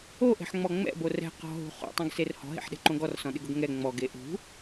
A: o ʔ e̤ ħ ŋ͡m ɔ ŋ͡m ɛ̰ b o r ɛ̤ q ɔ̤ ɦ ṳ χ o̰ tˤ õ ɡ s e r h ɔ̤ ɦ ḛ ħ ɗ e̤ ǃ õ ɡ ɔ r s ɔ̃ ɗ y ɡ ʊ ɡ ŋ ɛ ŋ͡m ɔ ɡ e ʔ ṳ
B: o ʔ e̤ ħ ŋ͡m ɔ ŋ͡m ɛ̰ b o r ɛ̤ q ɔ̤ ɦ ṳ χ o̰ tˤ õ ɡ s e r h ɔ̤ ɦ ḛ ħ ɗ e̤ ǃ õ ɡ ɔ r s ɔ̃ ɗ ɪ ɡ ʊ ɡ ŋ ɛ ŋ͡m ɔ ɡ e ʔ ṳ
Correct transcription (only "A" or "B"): B